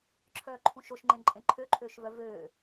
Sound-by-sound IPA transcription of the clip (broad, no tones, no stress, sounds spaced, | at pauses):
ǁʰ œː ǃʰ ũ ʃ o ʃ ŋ͡ǃ ẽ ǃʼ ẽ ǃʰ ø ǃʰ øː ʃ v œ v øː